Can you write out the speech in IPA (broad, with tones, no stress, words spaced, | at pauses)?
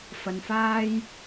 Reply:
fɐ˨n faː˧j